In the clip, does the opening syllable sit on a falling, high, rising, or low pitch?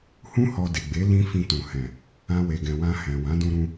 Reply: high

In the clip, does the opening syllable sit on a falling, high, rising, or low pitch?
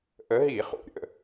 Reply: rising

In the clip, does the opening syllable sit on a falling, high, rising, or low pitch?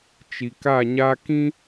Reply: low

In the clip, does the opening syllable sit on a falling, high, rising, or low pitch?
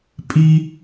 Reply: high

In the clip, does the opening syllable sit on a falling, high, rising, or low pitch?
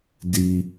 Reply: low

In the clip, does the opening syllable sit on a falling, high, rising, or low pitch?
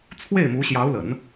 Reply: falling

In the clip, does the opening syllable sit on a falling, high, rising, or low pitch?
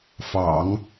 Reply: low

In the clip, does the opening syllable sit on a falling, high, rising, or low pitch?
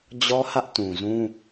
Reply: high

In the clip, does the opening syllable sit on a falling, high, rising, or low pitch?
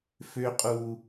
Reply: high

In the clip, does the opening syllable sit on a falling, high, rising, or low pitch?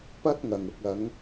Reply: high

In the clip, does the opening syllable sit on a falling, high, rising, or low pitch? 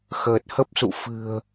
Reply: low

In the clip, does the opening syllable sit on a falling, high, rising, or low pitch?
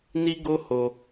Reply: high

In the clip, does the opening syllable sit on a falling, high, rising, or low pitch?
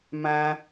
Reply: high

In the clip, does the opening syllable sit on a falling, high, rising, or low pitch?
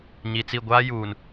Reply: low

